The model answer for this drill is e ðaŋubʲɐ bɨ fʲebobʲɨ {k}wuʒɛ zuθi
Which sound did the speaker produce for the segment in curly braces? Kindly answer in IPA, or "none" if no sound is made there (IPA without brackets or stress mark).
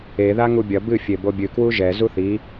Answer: k